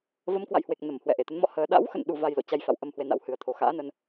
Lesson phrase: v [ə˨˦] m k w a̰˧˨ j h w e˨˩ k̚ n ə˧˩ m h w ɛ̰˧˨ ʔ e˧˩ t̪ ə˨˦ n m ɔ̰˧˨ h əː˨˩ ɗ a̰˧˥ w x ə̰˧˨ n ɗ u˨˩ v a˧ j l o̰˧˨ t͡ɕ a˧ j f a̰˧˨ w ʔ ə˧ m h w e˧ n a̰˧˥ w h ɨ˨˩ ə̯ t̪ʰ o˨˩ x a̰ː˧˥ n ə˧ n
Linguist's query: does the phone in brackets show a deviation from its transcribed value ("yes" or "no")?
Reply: no